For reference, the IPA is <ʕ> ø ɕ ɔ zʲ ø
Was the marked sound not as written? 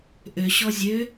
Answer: yes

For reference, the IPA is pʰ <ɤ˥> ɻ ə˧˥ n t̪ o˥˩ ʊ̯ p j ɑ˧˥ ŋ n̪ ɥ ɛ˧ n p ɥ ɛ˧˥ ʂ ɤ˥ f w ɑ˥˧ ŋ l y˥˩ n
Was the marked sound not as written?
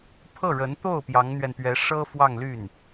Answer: yes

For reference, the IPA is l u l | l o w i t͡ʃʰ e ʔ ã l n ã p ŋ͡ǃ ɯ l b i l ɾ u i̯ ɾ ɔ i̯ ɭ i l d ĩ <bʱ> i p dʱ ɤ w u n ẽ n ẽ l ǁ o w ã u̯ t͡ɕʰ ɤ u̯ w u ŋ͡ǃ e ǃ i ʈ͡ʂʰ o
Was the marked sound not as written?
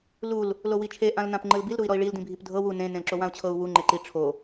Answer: no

